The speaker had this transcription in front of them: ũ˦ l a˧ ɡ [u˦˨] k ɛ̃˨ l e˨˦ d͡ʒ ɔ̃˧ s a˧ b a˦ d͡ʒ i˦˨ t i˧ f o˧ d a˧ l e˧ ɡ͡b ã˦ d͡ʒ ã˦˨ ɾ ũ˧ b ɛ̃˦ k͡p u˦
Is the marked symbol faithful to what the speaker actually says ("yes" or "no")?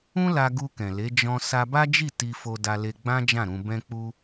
no